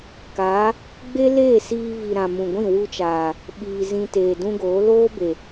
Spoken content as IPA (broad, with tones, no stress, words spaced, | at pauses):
kaː˨˦ | ɡ͡be˦leː˦˨siː˧ vi˨ ɾã˨mũ˨ɡʷĩ˦˨ wu˧t͡ʃaː˨ | ɓiː˨ zĩ˧teː˨dũ˦ɡoː˨˦ loː˦be˨